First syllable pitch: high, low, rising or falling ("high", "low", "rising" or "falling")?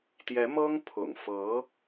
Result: rising